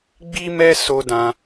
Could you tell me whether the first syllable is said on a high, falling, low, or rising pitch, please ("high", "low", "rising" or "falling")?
high